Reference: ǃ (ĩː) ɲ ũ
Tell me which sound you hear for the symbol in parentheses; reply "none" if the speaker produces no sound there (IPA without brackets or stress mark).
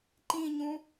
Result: ĩ